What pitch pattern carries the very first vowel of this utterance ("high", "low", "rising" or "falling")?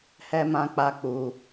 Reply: high